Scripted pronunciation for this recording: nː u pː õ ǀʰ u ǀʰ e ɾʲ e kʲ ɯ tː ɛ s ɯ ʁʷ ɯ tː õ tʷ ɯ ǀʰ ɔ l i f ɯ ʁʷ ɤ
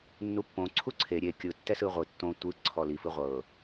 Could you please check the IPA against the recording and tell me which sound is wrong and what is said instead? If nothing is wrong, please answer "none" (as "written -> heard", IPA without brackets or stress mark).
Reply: none